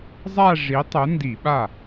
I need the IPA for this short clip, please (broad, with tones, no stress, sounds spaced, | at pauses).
zˤ a˥˧ ʐ i˨˥ tˤ ʊ˨˥ n d i˧˩˧ ɓ a˥˩